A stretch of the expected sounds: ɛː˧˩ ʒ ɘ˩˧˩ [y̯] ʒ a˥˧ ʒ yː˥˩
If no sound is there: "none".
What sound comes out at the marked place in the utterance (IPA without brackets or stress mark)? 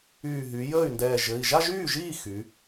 i̯